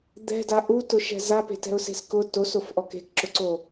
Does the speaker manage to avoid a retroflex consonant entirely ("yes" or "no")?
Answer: yes